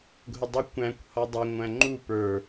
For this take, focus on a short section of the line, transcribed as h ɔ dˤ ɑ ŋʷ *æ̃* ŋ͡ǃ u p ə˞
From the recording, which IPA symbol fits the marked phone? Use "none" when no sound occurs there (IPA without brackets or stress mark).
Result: æ̃